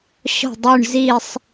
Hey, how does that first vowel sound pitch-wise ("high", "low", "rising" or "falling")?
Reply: falling